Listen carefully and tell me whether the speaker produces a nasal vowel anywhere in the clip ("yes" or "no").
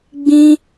yes